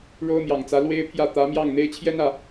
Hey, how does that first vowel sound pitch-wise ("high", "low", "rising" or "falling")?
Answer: high